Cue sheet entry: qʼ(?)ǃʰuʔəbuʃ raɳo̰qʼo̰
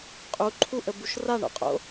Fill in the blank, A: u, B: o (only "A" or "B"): A